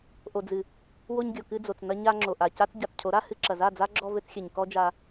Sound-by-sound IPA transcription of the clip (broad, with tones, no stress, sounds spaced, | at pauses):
ʔ o˨ d͡z ɨ˨ | w o˧ ɲ ɡʲ o˨ k ɨ˧ d͡z o˨ t͡s n ɐ˧ ɲ a˧ ŋ͡ǁ o˨ ʔ a˨ c a˦ t͡s ɟ a˨ t͡s cʰ o˨˦ ɾ a˦ h ɨ˦ ǁ ɐ˨ z a˦˨ d͡z a˦ ɡ͡ǁ ɔ˧ v ɘ˧ t͡s xʲ ɘ˨ ɲ k ɔ˦ d͡ʒ a˧